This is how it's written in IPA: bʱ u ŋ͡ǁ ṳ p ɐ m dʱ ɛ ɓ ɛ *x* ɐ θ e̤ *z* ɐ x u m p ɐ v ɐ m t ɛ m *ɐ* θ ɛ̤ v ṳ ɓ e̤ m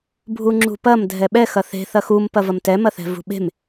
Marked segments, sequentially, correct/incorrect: correct, incorrect, correct

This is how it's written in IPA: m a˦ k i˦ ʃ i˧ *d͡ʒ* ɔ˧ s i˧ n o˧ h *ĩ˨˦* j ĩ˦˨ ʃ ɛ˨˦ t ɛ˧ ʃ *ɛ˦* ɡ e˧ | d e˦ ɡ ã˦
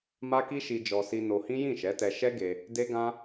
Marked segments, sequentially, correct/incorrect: correct, incorrect, correct

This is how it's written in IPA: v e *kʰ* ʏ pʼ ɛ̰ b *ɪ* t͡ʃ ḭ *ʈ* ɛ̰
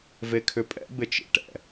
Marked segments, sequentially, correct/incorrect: correct, correct, correct

